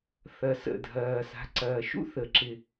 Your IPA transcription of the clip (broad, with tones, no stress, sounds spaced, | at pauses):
θ ɐ˨˩ s ə̰˨˩ dʱ ɐː˨˩ s a̤˩˧ ǀ ɐː˨˩ ʃ ṵ˥ θ ə˩˧ ǁ ɪ˨˩